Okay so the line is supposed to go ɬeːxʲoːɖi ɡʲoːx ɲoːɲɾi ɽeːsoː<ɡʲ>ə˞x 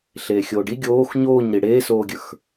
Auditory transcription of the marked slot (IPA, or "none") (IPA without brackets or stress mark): ɡʲ